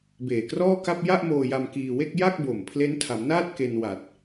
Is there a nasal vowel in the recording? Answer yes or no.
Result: no